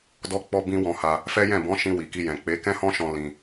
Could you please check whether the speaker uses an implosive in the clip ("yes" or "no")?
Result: no